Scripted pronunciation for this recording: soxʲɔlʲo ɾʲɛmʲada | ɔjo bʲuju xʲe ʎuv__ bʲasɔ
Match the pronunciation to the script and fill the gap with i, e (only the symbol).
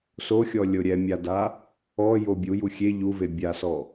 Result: e